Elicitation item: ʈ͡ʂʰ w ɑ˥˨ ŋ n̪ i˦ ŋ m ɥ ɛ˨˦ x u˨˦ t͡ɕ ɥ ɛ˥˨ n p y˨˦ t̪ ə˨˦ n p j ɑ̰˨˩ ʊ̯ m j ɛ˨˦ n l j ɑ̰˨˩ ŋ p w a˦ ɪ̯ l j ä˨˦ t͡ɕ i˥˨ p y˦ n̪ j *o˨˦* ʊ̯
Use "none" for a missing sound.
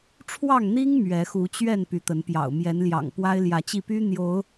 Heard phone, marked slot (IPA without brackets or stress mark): o˨˦